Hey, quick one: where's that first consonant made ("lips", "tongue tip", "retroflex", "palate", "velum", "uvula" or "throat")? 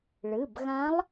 retroflex